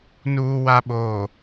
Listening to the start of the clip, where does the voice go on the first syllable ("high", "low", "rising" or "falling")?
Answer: low